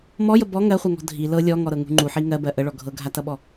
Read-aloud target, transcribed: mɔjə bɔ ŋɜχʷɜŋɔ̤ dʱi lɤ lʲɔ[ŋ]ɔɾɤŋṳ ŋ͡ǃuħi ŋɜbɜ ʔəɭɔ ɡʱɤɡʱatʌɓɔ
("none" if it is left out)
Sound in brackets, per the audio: ŋ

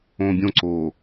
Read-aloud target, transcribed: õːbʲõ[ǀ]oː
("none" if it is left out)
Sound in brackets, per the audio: ǀ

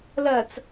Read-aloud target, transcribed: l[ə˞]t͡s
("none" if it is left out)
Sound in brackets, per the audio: ɐ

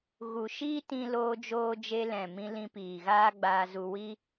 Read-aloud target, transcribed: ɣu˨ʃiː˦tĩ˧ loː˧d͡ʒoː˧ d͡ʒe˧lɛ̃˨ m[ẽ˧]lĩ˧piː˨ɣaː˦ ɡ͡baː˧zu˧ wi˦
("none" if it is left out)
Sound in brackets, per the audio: ĩ˧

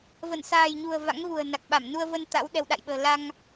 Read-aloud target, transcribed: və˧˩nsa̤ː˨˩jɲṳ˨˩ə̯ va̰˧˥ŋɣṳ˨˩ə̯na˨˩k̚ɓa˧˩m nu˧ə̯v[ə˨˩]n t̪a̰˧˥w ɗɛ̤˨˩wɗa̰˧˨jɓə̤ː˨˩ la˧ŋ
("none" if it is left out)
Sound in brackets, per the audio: ə˧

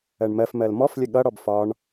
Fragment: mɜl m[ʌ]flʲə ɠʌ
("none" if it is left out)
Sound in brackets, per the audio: ɔ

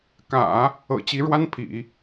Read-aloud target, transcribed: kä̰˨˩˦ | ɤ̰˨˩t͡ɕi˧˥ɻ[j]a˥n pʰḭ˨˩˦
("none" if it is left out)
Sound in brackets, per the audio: w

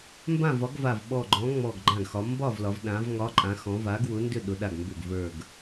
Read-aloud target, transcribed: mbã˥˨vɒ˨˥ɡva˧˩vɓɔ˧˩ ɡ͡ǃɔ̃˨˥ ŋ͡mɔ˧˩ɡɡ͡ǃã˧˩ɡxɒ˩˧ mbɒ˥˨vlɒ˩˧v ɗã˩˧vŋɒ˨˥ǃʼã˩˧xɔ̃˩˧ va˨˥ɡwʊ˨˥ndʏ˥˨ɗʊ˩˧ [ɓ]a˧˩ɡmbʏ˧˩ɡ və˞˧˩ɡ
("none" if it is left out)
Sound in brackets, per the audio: ɗ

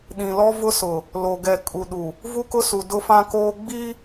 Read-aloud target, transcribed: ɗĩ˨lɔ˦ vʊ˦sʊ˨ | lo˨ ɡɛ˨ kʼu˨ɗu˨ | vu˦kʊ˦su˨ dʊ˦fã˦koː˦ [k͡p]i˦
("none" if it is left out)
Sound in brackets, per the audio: ɡ͡b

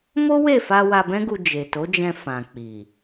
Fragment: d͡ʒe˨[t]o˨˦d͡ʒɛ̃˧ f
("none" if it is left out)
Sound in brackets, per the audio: t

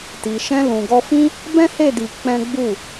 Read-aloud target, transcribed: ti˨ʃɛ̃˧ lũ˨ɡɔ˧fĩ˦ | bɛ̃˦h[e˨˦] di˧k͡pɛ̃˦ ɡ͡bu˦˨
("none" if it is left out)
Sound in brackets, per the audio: e˦˨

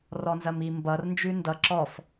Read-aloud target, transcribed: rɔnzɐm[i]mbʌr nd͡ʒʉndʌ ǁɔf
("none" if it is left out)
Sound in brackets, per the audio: i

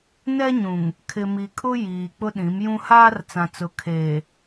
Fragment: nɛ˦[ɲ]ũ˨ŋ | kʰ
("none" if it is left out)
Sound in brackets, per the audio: ɲ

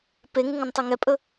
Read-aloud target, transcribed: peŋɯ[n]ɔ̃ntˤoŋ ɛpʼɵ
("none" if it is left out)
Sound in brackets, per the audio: ŋ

